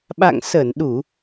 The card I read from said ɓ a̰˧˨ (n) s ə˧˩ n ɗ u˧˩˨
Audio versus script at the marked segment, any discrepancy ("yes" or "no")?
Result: yes